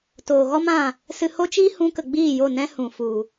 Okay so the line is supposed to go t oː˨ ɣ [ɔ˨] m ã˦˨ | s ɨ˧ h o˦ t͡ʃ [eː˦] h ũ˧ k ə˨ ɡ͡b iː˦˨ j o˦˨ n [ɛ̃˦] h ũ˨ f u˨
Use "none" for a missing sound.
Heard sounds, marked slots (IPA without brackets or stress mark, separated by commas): ɔ˦, iː˦, ɛ̃˦